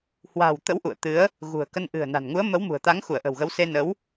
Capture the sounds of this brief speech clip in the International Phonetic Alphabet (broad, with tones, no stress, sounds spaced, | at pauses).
h w a̤ː˨˩ w t̪ ə̰˧˥ w ʔ ṵ˧˨ ə̯ t̪ ɨ˨˦ ə̯ | ɣ ṳ˨˩ ə̯ k ə˧ n ʔ ɨ̤˨˩ ə̯ n a̤˨˩ n ŋ u˨˦ ə̯ m ə˨˦ w m ṳ˨˩ ə̯ t̪ a˨˦ ŋ x u˧˩ ə̯ ʔ ə̤˨˩ w ɣ ə˨˦ w s e˧ n ə˨˦ w